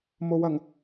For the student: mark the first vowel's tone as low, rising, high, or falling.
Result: low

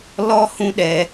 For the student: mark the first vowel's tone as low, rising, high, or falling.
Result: high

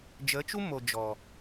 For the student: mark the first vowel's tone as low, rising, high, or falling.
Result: rising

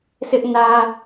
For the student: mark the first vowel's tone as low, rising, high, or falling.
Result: high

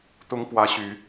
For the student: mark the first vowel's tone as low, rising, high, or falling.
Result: rising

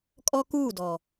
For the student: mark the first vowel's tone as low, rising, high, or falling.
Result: high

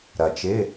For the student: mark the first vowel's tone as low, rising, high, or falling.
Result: low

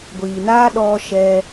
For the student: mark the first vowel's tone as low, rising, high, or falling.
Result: low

